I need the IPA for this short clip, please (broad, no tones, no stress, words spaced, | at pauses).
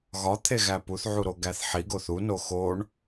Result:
ɣɒt̪ʰeɣæ puθʕuɾoɡæθ ħiɡoθ uno xoɳ